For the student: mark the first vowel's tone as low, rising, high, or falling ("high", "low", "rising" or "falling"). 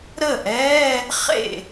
falling